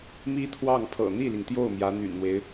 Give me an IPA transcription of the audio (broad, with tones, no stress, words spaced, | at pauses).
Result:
mi˥t̪ʰwɑ˥˩ŋpʰɤ̰˨˩ n̪i˥˩li˩ŋt̪jo˥˩ʊ̯ mjä˧˥n̪y̰˨˩nn̪we˦ɪ̯